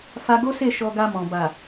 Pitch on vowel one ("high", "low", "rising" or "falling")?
high